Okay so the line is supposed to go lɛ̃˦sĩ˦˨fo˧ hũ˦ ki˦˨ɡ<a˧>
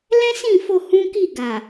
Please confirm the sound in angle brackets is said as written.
no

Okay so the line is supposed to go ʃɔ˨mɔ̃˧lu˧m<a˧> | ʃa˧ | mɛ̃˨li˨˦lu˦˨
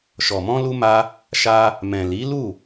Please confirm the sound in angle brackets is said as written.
yes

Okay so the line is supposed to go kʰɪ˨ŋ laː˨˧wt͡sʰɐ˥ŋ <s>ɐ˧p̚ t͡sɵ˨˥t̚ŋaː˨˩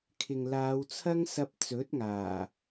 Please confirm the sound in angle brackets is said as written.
yes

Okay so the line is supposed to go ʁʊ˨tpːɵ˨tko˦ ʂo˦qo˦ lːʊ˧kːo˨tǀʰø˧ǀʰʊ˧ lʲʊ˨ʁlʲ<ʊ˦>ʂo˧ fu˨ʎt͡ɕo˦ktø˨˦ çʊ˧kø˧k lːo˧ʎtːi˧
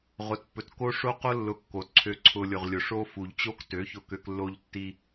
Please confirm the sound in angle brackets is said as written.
no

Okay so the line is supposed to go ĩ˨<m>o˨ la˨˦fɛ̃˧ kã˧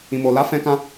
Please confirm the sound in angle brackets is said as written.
yes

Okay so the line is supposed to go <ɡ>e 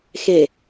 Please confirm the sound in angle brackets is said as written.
no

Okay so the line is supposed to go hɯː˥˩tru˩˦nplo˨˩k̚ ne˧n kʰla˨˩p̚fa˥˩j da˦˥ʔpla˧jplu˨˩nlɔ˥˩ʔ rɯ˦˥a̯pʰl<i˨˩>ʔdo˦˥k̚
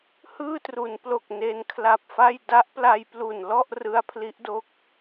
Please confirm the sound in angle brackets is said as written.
no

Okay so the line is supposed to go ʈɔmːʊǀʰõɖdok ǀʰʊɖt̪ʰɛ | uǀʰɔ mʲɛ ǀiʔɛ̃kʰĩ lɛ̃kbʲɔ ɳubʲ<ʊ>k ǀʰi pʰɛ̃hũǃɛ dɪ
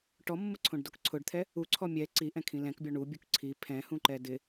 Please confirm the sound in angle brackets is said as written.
no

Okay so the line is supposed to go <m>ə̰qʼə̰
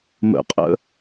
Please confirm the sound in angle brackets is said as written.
yes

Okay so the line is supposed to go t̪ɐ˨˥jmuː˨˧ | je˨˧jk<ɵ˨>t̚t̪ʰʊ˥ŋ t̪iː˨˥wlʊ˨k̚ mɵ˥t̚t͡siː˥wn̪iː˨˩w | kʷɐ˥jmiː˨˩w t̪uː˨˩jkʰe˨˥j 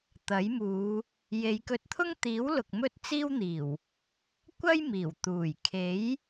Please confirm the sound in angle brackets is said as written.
no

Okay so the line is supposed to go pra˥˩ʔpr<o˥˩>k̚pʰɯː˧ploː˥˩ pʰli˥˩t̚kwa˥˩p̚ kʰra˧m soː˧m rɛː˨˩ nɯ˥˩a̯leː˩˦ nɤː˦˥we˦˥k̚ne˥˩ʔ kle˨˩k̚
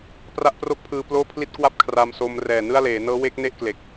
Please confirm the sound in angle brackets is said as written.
yes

